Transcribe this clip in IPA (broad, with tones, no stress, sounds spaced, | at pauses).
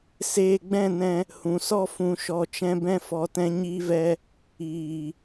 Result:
s eː˧ ɡ͡b ɛ̃˦˨ n ɛ̃˧ | h ũ˨ s ɔ˦ f ũ˧ ʃ ɔ˧ t͡ʃ ɛ̃˧ b ɛ̃˧ f ɔ˨ t ɛ̃˧ ɲ iː˧ v ɛ˧ | iː˨